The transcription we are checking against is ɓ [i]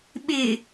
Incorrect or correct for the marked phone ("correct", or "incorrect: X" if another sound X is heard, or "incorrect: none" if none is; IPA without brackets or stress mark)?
incorrect: ɪ